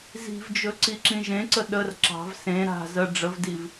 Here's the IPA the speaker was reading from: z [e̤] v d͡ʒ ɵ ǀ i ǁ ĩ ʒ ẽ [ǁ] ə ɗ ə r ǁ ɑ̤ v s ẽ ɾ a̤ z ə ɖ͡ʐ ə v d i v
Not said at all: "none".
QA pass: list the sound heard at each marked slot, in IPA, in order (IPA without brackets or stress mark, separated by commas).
i̤, ǀ